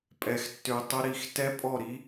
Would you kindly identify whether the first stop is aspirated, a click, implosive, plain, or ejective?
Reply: ejective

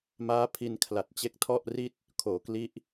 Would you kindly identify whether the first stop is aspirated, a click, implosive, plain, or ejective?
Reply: aspirated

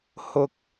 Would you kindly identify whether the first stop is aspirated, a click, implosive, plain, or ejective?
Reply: plain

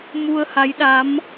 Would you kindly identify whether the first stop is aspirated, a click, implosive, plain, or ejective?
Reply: implosive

